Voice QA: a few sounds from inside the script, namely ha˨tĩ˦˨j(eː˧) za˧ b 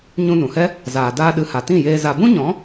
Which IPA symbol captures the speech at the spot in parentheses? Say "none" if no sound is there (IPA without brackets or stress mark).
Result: eː˧